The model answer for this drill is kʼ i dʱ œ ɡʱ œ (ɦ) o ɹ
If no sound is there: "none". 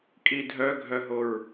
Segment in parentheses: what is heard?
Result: ɦ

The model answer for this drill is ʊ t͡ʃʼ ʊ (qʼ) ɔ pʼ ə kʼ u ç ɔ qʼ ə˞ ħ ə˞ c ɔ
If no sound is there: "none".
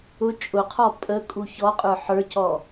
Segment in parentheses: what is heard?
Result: qʰ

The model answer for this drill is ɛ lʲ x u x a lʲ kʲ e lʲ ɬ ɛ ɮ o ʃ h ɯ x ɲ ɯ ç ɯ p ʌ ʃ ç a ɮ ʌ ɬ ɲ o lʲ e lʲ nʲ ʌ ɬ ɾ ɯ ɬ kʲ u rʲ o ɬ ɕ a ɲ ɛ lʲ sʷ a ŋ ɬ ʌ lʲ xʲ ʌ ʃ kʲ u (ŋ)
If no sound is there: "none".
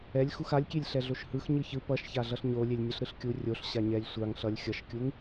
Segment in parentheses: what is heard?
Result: ŋ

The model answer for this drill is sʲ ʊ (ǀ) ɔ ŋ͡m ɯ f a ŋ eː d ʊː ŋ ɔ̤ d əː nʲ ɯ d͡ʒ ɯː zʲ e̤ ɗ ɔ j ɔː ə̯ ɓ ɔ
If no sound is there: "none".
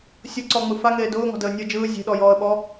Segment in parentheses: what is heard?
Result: ǀ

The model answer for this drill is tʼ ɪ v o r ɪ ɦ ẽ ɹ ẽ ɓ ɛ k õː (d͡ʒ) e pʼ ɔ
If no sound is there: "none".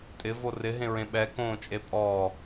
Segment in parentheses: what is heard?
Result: t͡ʃʼ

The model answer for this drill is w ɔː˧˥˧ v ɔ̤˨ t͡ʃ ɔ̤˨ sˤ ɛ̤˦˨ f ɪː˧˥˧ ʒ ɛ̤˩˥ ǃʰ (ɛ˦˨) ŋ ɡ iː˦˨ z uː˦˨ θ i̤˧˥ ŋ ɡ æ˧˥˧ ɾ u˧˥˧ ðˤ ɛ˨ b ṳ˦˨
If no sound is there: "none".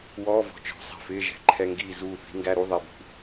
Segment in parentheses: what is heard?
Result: ɛ˧˥˧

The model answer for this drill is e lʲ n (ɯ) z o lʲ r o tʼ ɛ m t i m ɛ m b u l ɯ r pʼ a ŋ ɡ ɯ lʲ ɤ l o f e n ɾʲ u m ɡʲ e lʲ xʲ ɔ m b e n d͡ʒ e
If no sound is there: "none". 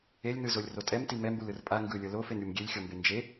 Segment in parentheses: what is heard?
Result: ɯ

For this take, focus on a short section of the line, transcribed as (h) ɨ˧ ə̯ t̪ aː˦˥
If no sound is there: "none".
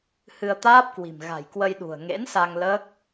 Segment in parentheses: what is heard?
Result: h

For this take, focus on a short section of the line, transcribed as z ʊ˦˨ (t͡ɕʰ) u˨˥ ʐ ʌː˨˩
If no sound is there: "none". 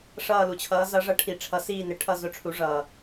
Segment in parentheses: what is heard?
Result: ʈ͡ʂʰ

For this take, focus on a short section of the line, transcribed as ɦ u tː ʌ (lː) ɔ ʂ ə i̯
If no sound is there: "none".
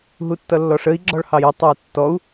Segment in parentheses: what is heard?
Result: lː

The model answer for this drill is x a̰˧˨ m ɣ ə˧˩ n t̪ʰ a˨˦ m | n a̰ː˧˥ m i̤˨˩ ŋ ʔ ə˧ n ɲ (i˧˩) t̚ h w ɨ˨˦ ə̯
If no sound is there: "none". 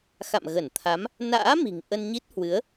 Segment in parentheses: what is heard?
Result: i˦˥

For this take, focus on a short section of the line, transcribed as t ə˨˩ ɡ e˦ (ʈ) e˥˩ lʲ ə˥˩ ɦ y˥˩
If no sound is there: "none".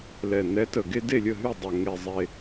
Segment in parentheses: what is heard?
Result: d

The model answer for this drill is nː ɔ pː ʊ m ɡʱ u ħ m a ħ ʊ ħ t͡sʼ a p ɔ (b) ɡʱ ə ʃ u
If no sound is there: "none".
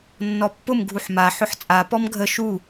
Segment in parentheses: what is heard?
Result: m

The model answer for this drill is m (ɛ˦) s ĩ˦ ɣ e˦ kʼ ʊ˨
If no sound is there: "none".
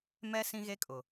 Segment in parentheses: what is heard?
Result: ɛ˦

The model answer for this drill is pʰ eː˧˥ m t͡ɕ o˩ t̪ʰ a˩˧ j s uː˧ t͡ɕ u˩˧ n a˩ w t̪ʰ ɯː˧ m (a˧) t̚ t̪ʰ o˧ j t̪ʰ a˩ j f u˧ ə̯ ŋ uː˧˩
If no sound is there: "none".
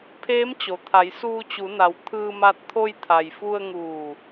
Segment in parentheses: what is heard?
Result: a˧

